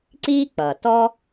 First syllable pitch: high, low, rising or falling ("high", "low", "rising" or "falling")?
high